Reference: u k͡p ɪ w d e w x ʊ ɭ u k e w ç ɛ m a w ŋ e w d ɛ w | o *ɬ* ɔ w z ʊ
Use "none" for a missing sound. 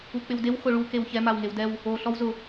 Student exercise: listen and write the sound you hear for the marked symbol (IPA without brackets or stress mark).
ɬ